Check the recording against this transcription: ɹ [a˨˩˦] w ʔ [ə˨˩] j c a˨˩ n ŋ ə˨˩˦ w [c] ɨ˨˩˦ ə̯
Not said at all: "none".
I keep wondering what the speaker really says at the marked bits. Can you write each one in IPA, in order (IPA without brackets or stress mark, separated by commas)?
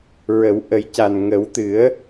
ə˨˩˦, ə˨˩˦, t̪